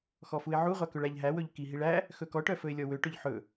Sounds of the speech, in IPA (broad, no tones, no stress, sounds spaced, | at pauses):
x ɔ f u ɪ̯ ʕ u ʁʷ a k ɵ ɭ æ ʎ ɦ æ w ɵ ʎ k i ɦ i ɭ æ | x ɵ k ɔ ʈ œ f ɵ ɪ̯ lʲ ɔ w ø ʈ ɵ ʎ ħ ɵ